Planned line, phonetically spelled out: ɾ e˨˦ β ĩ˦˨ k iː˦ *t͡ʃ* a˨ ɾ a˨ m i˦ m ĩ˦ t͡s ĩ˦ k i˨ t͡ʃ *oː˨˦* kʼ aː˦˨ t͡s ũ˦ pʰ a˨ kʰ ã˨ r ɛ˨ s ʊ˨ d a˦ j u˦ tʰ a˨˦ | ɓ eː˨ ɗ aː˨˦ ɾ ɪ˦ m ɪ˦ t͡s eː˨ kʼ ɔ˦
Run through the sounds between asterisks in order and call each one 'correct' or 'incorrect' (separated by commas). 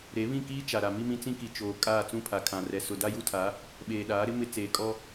correct, incorrect